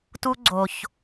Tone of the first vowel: high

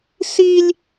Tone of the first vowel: high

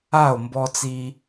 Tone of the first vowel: falling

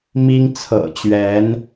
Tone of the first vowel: high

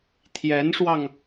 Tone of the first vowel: rising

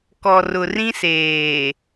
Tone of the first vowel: low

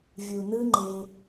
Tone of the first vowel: low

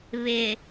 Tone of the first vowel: low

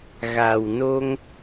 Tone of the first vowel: low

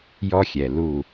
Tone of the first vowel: high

